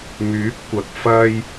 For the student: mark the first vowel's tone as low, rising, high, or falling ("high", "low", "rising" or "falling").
rising